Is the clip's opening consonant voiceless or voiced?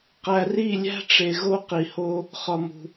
voiceless